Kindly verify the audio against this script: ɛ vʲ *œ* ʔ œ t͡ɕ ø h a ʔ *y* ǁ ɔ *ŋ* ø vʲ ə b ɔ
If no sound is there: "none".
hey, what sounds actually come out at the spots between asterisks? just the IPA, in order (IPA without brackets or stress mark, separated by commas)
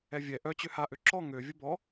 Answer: ɛ, ø, ŋ